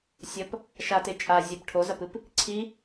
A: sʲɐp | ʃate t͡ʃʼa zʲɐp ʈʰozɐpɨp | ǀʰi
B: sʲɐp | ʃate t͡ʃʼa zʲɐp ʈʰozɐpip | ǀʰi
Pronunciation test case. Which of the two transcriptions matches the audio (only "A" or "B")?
A